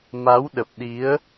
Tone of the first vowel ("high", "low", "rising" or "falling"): rising